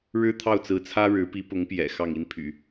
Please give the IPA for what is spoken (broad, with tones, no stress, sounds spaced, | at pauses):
ɻ ɻ̩˥ t̪ʰ ɑ˥˩ ʊ̯ t͡s ɹ̩˧˥ t͡sʰ ä˥ ɻ ɻ̩˧˥ p i˧˥ p ʊ˧˥ ŋ p j ɛ̰˨˩ x ɑ˥˩ ŋ i˥ n pʰ y̰˨˩˦